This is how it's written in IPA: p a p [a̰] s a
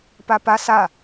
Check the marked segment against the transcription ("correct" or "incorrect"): incorrect